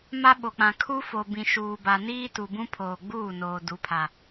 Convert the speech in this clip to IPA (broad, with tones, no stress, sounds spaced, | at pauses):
m a˦ ɓ o˨ k͡p ã˨ kʰ u˦ f o˨ b ĩ˨ ʃ uː˨ b a˨ n iː˦ t u˨ b ũ˦ pʰ oː˨ ɡ͡b uː˦˨ n oː˨ d u˨˦ pʰ a˨